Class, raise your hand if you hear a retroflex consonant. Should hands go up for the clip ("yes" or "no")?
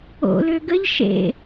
no